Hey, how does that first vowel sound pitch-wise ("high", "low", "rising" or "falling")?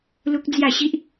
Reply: high